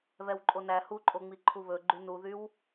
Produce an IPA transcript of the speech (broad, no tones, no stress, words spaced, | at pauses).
βɛwǃʼonæ huǃʼoŋ͡mi ǃʰuβɵ ɡ͡ǃynuðyw